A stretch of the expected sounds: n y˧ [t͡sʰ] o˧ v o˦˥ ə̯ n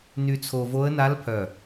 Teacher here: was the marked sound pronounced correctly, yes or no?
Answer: yes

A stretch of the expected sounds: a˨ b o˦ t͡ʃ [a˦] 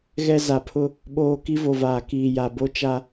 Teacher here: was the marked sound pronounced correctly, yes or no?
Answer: yes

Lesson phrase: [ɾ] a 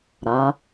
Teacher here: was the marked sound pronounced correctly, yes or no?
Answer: yes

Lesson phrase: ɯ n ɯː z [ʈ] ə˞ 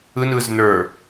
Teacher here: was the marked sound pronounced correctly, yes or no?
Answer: no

